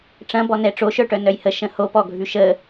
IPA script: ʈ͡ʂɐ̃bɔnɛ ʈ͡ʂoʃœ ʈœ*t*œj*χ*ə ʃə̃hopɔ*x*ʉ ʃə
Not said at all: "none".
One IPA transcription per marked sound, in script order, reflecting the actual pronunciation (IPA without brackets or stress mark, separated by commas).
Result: n, h, ɡʱ